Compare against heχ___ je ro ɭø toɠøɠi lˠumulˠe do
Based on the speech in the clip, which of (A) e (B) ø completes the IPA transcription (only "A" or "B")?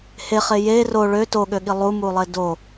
A